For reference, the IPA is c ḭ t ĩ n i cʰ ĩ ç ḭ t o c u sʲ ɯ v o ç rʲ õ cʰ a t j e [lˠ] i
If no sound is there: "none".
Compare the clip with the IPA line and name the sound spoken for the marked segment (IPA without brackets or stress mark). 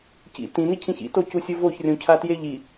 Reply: ʎ